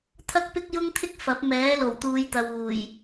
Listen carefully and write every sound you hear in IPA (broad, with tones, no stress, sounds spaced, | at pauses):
t̪ʰ ɐ˥ k̚ p ɪ˥ k̚ j ʊ˥ ŋ t̪ʰ ɪ˥ k̚ f ɐ˨˥ p̚ m ɛː˨˥ l o˨˩ w t̪ uː˨˧ j t̪ ɐ˨ w uː˨˩ j